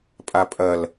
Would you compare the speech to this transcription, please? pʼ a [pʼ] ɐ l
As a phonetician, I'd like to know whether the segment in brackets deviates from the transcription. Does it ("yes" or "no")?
no